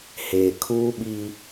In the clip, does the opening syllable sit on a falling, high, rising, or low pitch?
low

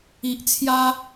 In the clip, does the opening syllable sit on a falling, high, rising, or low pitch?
low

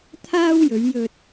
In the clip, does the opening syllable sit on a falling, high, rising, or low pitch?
high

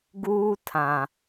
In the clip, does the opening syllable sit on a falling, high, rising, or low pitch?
high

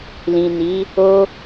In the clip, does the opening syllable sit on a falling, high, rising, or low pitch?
low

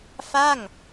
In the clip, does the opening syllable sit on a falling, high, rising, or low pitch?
falling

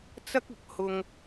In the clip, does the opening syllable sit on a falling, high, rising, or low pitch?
high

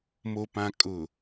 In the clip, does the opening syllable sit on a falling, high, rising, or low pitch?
low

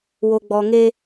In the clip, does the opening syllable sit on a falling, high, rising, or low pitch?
low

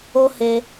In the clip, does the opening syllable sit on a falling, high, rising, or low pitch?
high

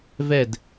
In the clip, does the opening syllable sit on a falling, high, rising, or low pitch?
falling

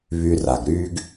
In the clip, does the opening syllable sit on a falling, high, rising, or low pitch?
low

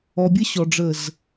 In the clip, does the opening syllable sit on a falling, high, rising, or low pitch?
low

